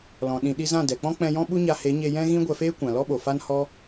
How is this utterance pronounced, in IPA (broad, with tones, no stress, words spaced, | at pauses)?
lɔ̃˨ ɗĩ˨ɗi˧zã˦˨ dɛ˨k͡pɔ̃˦k͡pɛ̃˧jɔ̃˦ ɓu˦ɲa˧ he˨˦ɲe˧ jɛ̃˦ɣĩ˦ ɡʷɛ˧feː˦kʷã˨ lɔ˦ɓo˨fa˦n hɔ˦